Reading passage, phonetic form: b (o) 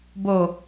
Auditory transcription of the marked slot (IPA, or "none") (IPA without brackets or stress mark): o